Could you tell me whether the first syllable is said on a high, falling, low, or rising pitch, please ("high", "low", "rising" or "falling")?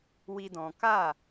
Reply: high